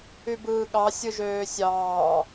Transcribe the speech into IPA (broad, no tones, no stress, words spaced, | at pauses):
ybɯːɠɑ sʲɯʒøːsʲɑː